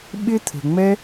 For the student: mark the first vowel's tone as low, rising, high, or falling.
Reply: high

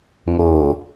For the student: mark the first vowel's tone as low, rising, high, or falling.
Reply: low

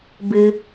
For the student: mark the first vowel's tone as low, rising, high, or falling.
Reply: low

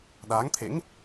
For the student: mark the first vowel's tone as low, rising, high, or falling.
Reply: rising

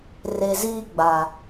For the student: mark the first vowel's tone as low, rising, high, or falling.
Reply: low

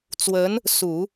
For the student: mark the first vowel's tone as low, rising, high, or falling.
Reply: rising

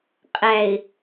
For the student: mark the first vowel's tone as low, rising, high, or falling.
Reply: low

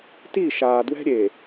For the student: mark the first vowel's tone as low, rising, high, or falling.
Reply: falling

